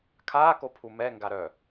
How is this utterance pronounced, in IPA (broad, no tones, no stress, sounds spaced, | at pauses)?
kʰ aː k o pʰ u m ɛ ŋ ɡ a ɾ œ